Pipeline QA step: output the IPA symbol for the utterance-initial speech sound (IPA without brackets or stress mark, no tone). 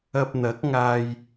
ɐ